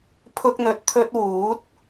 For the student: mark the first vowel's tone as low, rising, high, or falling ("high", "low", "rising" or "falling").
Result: high